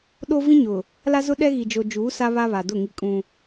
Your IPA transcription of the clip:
ɗ o˦ v ĩ˦ ɲ ʊ˨ | l a˦ z ʊ˦ ɗ ɛ˦ ɣ i˨ d͡ʒ o˨ d͡ʒ uː˨˦ s a˦ β a˦ β a˨ d ʊ˦˨ ŋ i˦ kʼ ũ˦

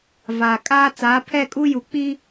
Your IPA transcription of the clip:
v aː˨ kʼ aː˦ t͡s aː˨˦ pʰ ɛ˦˨ kʼ u˦ j u˨ k͡p i˦

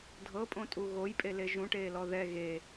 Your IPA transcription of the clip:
dʱ ɤ pʼ õ tʼ u ɣ o j pʼ e l e ʒ ũ ʈ eː l ɔ ð ɛ ɣ e

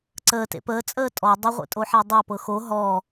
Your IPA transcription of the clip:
ǀ əː t ḛ p əː t͡sʼ əː tʼ ɔ dˤ ə ʁʷ ḛ tʼ o ħ a dˤ a p ɤ x o ɦ ɔ

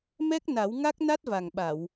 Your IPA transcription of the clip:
m ɛ˦˥ k̚ n a˨˩˦ w ŋ a˦˥ k̚ n a˦˥ t̚ v a˨˩ ŋ ɓ a˨˩˨ w

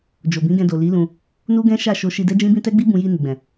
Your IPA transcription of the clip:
d͡ʒ o˨ b ĩ˨˦ ɡ ɛ̃˧ d o˨ l i˨˦ l ũ˧ | n u˦ ɡ ɛ̃˦ ʃ a˦˨ ʃ o˧ ʃ i˧ d ɛ˦ d͡ʒ ĩ˦ b ĩ˦ t ɛ˦ ɡ͡b i˦ b ũ˧ j i˧ n i˨ ɡ͡b ɛ̃˨

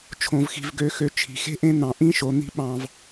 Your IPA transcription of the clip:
t͡ʃʰ õ˨ v x i̤˨ v ɡ ø˨ x ø˨ t͡ʃʰ i̤˨ x e̤˦ ʔ ẽ˦ n̪ ɑ̃˨ ʔ ĩ˦ ʃ o˨ n̪ i̤˦ ɓ ɑ̃˨ v

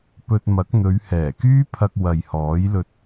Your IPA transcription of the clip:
p ɵ˧ t̚ m ɐ˨˥ k̚ n̪ ɵ˨˧ ɥ h ɛː˨˩ k yː˥ pʰ ɐ˧ k̚ w ɐ˨ j h ɔː˨˥ j l ɵ˧ t̚

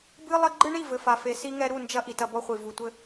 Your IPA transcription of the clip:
b ɨ˦ lˠ ɐ˦ ɡ͡ǃ ɨ˦ ɳ i˦˨ v ɘ˨ f a˨ f e˨ s i˦ ŋ ɛ˦ ɾ u˦˨ n d͡ʒ ɐ˦ ʔ i˨ t ɐ˦ b ɔ˦ χʷ i˨ v u˨ tʷ ɘ˦

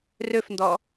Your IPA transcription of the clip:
r ø f n d ɔ

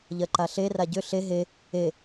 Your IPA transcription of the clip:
ʎ ɜ ǃ a ɬ e r a ɟ ʏ ɬ e ɦ e | e

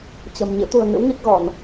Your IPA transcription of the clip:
t͡ɕ ə̤˨˩ m ɲ ɨ̰˧˥ t̪ ṳ˨˩ ə̯ ŋ ɨ̰˧˥ w ŋ i˦˥ k̚ ɣ ɔ˧˩˨ n

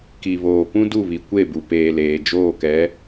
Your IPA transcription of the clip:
k i˨ β oː˨ p ũ˦ d u˦˨ β i˨ kʷ e˦˨ b u˨ p eː˨ l eː˨ d͡ʒ oː˦˨ k ɛ˨˦

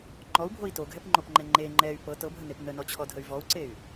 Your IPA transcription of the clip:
ŋ͡ǃ ɔ u̯ bʱ o i̯ t o ɡʱ ɛ p ŋ͡ǃ o p ŋ͡ǃ ɛ ŋ͡ǃ e ŋ͡ǃ ɛ y̯ p ɤ t ɤ bʱ ə n e p n ə n ɔ t͡ɕʰ ɔ dʱ ə y̯ v ɔ u̯ ǀ e y̯

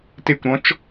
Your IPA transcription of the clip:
t e kʷ ɾ ɔ̃ t͡ʃ

